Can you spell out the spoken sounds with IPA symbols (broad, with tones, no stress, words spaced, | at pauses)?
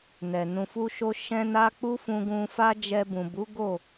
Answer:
nɛ˨ nũ˨fu˧ʃo˧ ʃɛ̃˦na˦ k͡pu˦fũ˧ɡũ˧ fa˦d͡ʒɛ˧bũ˨ bu˨˦ɡo˦˨